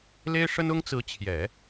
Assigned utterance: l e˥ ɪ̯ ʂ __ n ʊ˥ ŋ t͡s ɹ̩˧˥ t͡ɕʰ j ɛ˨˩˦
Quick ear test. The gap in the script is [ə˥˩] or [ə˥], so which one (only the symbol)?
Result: ə˥